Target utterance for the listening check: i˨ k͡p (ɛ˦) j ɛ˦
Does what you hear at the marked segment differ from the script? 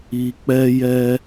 no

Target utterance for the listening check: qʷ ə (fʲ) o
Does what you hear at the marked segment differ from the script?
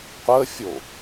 no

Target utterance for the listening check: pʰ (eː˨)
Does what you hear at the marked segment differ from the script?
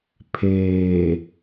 no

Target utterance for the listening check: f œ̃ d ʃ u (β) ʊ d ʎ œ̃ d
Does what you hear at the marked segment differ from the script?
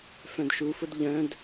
yes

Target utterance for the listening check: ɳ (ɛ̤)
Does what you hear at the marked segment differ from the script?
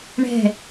no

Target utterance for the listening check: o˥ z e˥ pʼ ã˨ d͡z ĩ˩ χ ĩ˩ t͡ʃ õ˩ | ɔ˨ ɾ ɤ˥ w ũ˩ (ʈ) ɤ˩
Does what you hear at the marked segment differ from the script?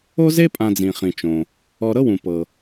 yes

